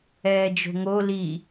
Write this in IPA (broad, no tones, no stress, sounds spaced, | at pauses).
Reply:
ɛː d͡ʒ o̤ ŋ o l i